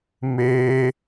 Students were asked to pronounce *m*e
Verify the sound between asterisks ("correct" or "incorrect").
correct